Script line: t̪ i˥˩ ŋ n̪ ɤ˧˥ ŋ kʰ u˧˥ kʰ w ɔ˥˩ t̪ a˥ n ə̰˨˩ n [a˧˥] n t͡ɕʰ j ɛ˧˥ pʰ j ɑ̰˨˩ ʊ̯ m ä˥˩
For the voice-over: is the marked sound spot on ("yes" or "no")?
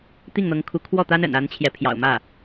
yes